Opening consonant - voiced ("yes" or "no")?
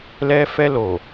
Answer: yes